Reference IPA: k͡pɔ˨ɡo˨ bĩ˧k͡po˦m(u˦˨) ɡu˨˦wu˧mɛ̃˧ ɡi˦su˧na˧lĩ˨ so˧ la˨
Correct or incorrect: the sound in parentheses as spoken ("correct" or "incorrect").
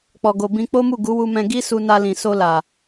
correct